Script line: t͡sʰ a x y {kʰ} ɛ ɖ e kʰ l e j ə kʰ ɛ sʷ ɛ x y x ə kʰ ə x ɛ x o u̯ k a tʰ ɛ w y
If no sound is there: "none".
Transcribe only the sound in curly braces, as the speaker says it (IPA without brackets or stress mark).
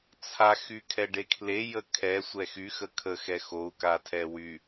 kʰ